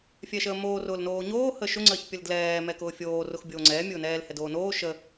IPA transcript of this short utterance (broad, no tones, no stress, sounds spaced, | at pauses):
fʲ ɛ ʃ əː m oː r ʊː l n oː ɲ oː h ə ʃ ʊ ŋ͡ǀ əː ç pʲ ə l d l ɛː m ɛ k ʊː fʲ oː r ʊ x bʲ oː ŋ͡ǀ ɛː mʲ ʊː n ɛː l h ɛ d oː n oː ʃ ə